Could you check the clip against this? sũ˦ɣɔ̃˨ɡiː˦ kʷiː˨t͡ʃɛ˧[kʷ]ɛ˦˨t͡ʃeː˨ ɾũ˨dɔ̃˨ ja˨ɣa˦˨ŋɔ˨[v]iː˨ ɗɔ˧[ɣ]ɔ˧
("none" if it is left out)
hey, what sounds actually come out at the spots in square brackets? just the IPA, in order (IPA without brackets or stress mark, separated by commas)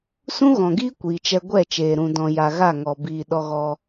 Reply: ɡʷ, b, ɣ